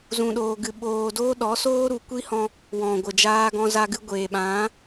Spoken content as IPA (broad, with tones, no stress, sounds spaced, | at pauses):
z ũ˧ ɗ oː˧ ɡ ɨ˧ ɓ oː˧ d oː˦ ɗ ɔ˨˦ s oː˦ ɾ u˨ kʷ i˦ h ɔ̃˧ | w ɔ̃˨ ɡʷ ə˨ d͡ʒ aː˧ ɡ ɔ̃˧ z a˧ ɡ ɨ˧ ɡʷ eː˨ ɓ ã˨˦